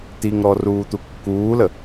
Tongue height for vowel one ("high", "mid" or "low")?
high